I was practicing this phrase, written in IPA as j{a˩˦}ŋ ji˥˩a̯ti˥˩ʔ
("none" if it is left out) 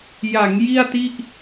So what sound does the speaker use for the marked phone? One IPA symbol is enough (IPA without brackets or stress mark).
a˩˦